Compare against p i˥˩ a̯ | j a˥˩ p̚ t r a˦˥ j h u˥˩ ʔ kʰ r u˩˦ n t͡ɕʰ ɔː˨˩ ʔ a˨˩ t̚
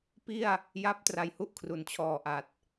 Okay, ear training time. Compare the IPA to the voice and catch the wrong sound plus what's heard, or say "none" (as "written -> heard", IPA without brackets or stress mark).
none